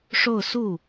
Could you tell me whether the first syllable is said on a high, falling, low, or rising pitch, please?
falling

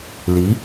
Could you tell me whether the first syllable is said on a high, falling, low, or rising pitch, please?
rising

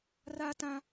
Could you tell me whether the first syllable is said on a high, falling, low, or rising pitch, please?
high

